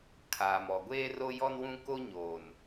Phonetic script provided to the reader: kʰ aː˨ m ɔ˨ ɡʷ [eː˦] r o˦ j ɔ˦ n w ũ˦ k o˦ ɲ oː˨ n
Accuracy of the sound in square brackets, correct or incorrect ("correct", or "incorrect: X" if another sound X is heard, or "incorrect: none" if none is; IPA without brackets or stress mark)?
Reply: correct